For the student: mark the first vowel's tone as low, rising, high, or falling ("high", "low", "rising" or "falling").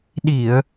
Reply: low